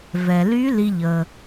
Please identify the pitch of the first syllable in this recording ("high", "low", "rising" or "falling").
low